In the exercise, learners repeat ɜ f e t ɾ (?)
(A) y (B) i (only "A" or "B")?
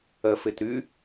A